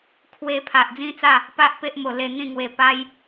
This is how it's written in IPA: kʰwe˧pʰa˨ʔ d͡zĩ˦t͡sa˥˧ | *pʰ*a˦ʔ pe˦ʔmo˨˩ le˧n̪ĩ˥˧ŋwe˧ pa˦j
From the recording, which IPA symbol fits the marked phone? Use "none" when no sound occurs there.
p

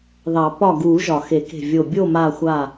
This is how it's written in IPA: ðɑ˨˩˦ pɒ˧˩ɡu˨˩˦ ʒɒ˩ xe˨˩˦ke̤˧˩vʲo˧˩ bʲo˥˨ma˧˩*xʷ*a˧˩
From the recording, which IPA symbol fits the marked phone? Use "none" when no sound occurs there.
xʷ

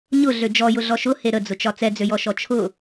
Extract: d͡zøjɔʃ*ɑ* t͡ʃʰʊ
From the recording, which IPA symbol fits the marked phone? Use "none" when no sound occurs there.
ɔ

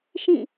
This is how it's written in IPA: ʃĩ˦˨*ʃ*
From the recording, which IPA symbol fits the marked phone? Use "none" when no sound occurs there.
none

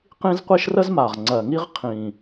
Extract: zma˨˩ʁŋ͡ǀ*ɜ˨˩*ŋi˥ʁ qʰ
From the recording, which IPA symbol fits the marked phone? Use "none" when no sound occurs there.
ɜ˨˩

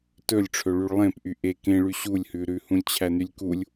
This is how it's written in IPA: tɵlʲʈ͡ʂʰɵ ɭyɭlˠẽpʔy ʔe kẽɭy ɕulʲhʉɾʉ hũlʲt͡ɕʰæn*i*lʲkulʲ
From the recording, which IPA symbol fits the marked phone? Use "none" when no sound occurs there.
y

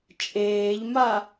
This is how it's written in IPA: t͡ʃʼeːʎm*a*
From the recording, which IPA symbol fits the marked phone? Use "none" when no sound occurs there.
a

